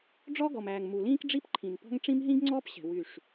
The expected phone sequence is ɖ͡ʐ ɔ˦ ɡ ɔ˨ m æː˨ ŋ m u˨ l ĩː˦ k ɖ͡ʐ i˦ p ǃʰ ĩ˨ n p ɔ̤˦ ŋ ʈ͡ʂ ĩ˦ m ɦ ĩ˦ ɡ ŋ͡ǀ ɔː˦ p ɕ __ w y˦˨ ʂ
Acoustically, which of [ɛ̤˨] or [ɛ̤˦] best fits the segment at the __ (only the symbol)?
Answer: ɛ̤˨